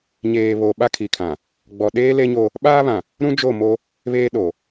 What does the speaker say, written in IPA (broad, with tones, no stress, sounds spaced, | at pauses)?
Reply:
ɲ eː˨ β o˨ ɓ a˦ kʰ i˨ kʰ ã˨ | ɡ͡b ɔ˨ ɗ eː˦ l e˦ ɲ o˦ | ɓ aː˦ β ã˨ | ɾ ũ˦ d͡ʒ o˦˨ m o˦ | β eː˦ ɗ o˨